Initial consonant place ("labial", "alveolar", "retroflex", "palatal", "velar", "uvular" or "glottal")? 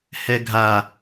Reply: glottal